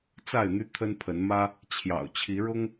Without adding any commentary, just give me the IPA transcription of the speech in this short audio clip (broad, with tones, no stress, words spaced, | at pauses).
t͡sa˥˨ɪ̯n̪y˦t̪ʰə˦npʰə˨˦n mä˦ | t͡ɕʰjɑ̰˨˩ʊ̯t͡ɕʰi˨˦ ɻʊ˦ŋ